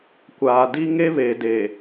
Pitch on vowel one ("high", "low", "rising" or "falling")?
low